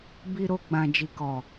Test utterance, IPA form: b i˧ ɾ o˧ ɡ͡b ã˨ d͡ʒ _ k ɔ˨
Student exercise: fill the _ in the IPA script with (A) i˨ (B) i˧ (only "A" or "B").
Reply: A